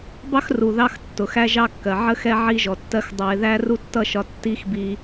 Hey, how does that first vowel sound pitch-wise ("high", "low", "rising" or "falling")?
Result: high